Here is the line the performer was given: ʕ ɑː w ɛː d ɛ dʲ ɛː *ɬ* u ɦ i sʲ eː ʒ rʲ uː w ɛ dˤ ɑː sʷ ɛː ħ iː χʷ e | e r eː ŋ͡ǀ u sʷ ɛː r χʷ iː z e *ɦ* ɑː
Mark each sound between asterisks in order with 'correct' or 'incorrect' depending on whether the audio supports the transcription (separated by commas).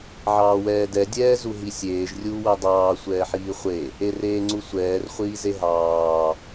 incorrect, correct